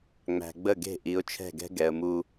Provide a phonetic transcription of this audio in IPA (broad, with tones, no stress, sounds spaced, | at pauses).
ŋ͡m æ̤˨ ɡ͡b ə˦˨ ɡ e̤˦˨ ʔ i˨˦ ʊ̯ t͡ʃʰ ɛ̤˦˨ ɡ ɛ̤˦ ɡ ɛ˨ ə̯ m u˦